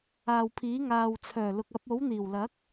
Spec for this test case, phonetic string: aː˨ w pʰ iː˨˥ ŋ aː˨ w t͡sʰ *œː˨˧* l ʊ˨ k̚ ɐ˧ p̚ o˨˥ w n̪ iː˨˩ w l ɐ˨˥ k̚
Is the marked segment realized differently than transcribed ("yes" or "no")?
yes